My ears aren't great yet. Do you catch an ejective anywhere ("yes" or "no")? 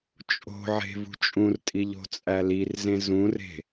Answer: yes